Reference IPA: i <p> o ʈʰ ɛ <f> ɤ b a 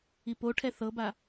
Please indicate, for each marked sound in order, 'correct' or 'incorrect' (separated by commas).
correct, incorrect